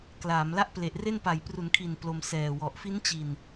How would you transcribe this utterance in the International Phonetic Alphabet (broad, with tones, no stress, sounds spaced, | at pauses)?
k l aː˩˦ m l a˥˩ ʔ p l e˨˩ ʔ r e˥˩ n p a˩˦ j p r u˩˦ n kʰ i˨˩ n p l o˧ m s ɛː˨˩ w ɔ˨˩ ʔ f i˦˥ n t͡ɕ i˨˩ n